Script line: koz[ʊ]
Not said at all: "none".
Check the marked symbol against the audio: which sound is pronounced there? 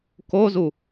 u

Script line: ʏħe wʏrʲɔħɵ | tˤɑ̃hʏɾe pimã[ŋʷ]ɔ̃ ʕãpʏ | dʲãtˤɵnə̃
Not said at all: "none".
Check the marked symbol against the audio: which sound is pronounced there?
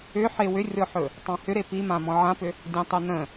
m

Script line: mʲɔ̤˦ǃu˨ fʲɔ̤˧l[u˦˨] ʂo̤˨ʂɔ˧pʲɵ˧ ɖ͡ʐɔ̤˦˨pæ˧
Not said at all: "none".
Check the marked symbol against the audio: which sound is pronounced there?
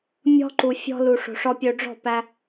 u˨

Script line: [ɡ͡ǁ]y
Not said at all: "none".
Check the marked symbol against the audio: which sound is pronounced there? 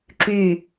ǁ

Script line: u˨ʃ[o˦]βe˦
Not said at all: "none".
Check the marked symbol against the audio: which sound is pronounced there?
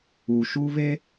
u˦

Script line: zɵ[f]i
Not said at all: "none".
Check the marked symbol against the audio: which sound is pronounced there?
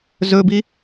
b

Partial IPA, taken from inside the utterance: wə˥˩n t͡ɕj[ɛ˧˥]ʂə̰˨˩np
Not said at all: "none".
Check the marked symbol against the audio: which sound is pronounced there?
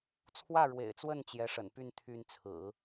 ɛ˧˥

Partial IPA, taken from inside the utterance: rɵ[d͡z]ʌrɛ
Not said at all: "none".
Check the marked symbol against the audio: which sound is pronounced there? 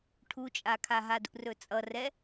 t͡sʼ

